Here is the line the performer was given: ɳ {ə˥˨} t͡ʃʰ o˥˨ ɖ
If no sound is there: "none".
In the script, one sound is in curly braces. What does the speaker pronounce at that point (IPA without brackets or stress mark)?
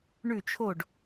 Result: ʉ˥˨